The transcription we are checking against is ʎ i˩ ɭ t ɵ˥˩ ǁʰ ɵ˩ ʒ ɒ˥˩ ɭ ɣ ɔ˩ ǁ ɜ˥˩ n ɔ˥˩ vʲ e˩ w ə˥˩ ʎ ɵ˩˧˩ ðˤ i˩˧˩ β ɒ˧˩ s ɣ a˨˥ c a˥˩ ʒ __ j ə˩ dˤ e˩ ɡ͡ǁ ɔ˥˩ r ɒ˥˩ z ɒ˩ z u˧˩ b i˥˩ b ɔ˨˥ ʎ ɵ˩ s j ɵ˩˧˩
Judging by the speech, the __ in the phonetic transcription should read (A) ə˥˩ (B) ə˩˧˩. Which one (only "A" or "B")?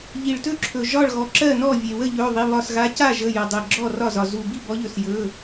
B